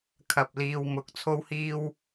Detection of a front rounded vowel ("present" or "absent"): absent